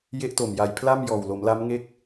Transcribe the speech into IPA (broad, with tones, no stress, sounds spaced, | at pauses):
j e˦˥ ʔ t o˨˩ m j a˨˩ j pʰ l a˥˩ m j ɔː˨˩ w l o˩˦ m l a˦˥ m ŋ e˥˩ k̚